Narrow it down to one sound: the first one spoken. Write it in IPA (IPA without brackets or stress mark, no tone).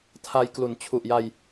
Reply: tʰ